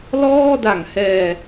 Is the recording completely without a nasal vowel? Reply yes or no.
yes